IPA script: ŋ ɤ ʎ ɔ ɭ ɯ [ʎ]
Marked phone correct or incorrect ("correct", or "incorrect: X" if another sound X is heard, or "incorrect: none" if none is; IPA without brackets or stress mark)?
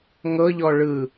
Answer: incorrect: none